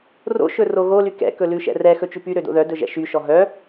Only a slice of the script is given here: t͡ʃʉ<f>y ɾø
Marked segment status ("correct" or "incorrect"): incorrect